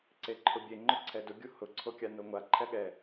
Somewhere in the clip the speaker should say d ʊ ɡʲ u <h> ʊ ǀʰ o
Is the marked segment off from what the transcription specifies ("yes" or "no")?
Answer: no